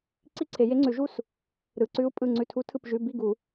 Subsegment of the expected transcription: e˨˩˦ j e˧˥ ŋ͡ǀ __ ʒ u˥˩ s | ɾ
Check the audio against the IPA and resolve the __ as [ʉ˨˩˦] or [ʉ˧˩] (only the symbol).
ʉ˨˩˦